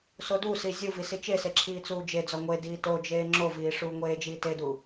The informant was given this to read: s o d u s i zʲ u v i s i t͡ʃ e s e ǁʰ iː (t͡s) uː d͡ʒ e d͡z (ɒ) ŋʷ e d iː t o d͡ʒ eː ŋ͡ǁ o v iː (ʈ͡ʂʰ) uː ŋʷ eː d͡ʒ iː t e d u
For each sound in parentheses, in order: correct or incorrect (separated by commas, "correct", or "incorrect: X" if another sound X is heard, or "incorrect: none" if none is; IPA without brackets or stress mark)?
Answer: correct, correct, incorrect: ʂ